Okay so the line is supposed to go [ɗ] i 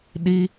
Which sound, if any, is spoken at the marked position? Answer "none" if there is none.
ɗ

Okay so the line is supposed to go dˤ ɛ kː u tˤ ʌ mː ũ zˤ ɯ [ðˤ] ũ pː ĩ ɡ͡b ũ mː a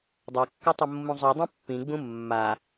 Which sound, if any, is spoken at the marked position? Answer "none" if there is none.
dˤ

